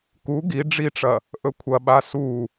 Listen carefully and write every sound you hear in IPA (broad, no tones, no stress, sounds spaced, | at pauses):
k u ɡ i ɖ͡ʐ i ʈ͡ʂ ɐ | ʔ ɵ kʷʰ ɐ ɓ a s u